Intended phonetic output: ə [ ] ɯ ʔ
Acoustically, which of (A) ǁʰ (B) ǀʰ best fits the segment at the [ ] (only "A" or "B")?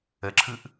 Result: A